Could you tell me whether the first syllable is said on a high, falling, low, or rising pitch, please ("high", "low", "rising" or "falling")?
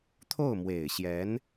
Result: falling